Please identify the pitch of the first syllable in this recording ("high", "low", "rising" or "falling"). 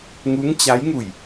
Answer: rising